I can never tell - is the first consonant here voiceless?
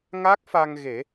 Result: no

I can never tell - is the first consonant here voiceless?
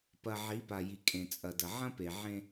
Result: yes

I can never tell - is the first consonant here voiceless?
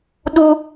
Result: no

